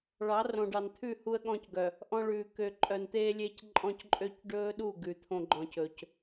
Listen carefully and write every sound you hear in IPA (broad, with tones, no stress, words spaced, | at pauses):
ɭɑ˨˦ rõ˨ɖɑ˨nt̪ʰʉ˦˨ hu˦ə̯ɠɔ̃˦cɡœ˨ | ʔɔ̃˦ɭʉː˨ kø˨ǃʼœ˨n t̪eː˦lʲe˦cǃʼɔ̃˦c ǃʼø˦c ɖɵː˦ɗu˦˨ ɡʉ˨t̪ʰõ˦ ɡ͡ǃɔ̃˨cɵ˨c